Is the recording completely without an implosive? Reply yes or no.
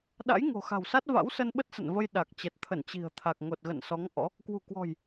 no